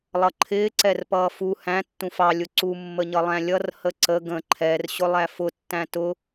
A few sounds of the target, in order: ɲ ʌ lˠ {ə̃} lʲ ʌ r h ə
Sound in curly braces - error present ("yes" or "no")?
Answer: yes